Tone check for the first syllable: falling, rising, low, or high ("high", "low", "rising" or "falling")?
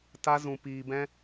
high